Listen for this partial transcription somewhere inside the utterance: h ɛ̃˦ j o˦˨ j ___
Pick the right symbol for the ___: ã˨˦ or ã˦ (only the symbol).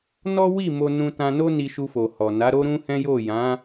ã˨˦